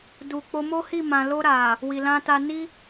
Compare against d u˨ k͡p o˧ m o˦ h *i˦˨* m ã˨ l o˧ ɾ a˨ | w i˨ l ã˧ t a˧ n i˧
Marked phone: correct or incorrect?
correct